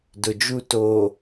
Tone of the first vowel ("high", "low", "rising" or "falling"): low